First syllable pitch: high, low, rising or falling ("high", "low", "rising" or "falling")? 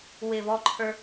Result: falling